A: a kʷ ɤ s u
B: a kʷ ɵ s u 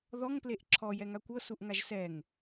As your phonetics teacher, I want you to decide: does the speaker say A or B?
A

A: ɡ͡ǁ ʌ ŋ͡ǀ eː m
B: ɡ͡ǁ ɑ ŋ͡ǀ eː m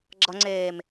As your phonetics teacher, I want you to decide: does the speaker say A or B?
A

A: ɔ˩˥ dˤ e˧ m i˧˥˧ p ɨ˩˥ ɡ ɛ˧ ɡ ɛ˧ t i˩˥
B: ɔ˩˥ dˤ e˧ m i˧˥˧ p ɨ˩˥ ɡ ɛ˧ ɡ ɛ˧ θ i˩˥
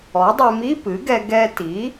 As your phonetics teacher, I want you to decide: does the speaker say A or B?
A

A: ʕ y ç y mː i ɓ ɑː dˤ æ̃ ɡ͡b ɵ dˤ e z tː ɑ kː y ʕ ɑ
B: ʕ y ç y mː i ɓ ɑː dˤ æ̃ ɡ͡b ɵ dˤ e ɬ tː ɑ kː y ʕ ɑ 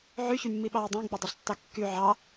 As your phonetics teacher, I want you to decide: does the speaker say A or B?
B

